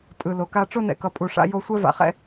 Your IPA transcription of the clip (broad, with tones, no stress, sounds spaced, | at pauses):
tʼ ɯ˨ l o˨ k a˧ ʈ͡ʂ o˧ n ɛ̰˨ k ʌ˨ pʼ u˨ ʂ a̰˧ j o˧ sʷ ɛ˦ v a̰˧ χ ɛ̰˦